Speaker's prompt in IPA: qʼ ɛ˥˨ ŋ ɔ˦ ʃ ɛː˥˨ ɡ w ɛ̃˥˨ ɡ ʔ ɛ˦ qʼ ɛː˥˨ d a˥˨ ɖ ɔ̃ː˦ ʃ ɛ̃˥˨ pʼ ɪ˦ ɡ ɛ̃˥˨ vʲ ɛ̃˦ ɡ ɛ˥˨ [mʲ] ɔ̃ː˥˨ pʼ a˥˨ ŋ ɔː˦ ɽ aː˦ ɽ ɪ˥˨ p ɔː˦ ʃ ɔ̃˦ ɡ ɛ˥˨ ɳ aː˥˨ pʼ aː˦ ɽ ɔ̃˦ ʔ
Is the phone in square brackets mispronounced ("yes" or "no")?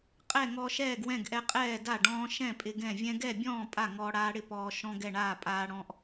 yes